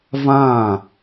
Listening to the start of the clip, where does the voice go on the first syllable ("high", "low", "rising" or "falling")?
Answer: falling